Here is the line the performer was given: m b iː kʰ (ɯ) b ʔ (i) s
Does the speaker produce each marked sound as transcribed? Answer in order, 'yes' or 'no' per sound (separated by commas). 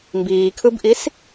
yes, yes